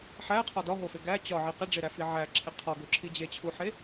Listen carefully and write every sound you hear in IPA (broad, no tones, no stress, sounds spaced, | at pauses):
ħ æ qʰ ɒ d ɒ ɦ o f e ɡ æ t͡ɕ ɒ ʕ i q e ɖ͡ʐ e ɾ æ f i ʕ æ ǁʰ e qʰ ɒ ɡ o ǁʰ i d͡ʑ e t͡ɕʰ u ħ e